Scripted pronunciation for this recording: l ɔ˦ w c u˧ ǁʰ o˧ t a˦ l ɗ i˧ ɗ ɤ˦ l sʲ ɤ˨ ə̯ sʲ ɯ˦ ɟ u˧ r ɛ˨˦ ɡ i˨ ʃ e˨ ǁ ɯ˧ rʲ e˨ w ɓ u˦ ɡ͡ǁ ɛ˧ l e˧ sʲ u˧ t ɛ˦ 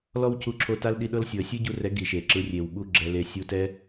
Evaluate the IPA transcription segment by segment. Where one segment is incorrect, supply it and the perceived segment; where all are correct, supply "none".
none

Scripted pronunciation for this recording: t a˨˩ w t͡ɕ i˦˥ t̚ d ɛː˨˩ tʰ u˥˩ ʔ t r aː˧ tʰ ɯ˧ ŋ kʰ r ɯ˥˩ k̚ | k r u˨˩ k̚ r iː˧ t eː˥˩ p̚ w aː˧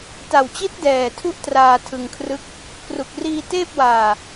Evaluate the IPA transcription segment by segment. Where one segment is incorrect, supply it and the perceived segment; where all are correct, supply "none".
none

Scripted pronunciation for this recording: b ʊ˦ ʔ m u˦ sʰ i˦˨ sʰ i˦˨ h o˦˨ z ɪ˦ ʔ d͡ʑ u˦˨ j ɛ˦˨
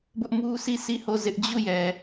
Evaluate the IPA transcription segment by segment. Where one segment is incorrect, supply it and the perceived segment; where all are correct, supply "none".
ɛ˦˨ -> ɛ˨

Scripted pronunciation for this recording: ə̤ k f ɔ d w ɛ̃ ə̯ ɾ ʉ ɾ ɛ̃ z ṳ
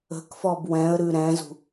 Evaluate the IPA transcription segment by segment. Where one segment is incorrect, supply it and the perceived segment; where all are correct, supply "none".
d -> b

